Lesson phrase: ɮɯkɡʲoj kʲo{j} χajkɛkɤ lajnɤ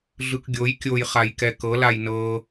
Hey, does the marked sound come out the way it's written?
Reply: yes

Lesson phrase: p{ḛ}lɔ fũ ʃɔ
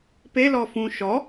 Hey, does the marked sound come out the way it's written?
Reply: no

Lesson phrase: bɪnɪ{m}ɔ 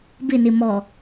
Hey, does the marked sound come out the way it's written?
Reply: yes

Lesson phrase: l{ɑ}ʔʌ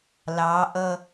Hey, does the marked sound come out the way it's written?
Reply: yes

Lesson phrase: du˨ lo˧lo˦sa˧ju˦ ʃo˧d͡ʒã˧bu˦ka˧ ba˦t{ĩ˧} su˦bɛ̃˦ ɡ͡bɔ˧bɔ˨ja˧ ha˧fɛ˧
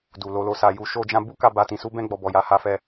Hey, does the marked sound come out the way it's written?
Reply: yes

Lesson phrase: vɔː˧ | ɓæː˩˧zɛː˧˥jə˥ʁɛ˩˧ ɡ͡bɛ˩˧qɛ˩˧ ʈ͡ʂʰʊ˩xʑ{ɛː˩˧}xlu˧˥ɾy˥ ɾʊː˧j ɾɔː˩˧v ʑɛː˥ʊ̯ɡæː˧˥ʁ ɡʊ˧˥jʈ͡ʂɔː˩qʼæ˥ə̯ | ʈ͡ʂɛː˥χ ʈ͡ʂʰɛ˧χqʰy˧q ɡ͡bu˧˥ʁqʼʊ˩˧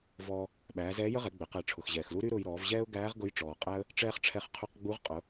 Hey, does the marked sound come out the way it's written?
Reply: no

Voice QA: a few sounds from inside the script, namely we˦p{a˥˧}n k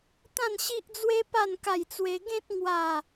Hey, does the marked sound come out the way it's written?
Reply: yes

